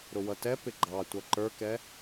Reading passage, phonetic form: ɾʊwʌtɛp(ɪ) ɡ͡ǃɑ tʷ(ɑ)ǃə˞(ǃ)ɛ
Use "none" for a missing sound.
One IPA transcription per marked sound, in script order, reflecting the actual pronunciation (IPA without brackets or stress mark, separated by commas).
ɪ, ʌ, k